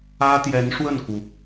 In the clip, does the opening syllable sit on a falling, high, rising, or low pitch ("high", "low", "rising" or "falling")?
high